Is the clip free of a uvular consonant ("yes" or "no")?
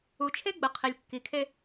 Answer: no